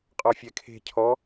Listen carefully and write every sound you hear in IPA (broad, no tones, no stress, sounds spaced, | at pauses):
qʼ ɔ fʲ ɛ kʰ e̤ cʰ ɔ